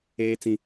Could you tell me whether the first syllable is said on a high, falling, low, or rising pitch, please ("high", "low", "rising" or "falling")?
low